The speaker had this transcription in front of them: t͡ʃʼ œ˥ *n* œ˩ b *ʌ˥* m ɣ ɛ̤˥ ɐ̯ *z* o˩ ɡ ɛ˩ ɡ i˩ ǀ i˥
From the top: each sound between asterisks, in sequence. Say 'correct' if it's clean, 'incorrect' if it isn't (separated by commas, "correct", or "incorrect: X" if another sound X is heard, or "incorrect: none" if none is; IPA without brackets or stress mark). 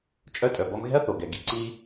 incorrect: tʼ, correct, incorrect: θ